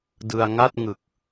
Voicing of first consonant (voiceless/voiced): voiced